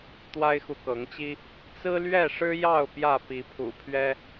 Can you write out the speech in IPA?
t̪ w a˦ ɪ̯ x u˨ k ɤ˨˦ ŋ t͡ɕ i˦ | t͡s ɹ̩˦ l ɥ ɛ˥˨ ʂ ɻ̩˦ j ɑ˥˨ ʊ̯ p j ä˥˨ p i˨˦ pʰ ṵ˨˩ pʰ ɥ ɛ˦

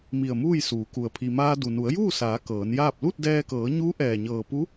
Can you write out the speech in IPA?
m i˧˩ ə̯ m uː˥˨ j s uː˩˧ k u˩ ə̯ pʰ i˩ m aː˧ d u˩ n u˩˧ ə̯ j uː˥˨ s aː˩˧ k ɤː˩˧ n j aː˥˨ p̚ l u˥˨ t̚ d ɛː˧ k ɤː˩˧ ɲ uː˧˥ ʔ ɛː˧˩ ɲ ɤː˧˩ p u˧˥

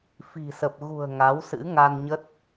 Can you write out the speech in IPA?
f i̤˨˩ s ə˨˩ p̚ ɣ ṳ˨˩ ə̯ ŋ a˨˦ w s ɨ̰˧˥ ŋ a˧ n ɲ ə˦˥ t̚

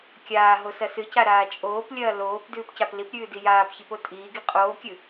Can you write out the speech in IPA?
kʲ aː ɦ o s ɐ s ɨ c a ɾ aː t͡ʃʼ oː p lʲ ɐː l oː p d ʉː p c a p l i p ɾʲ ʉː d i j aː p ç i p o tʼ iː ɡ i qʼ oː kʲ ɨ

